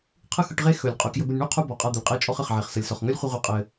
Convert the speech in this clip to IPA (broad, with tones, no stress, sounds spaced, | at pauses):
qʰ ɯ˦ x ɯ˧ ʈ ʁ e˦ x ɵ˨ lʲ qʼ ɵ˨ k j ɵ˧ b ɘ˧ nʲ ɳ u˦ qʰ u˧ b ɔ˨ qʼ a˧ d̪ ə˨ lʲ qʼ e˦ t͡ʃʼ ɔ˦ χ ə˨ χ ʕ e˨ χ s ə˨ lʲ s ɔ˨ χ ŋ ɵ˦ lʲ χʷ ə˧ ʁʷ ɯ˧ qʼ ɘ˧